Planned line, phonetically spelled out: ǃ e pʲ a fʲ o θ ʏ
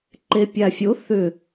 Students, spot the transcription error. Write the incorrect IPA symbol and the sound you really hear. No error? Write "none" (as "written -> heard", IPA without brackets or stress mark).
none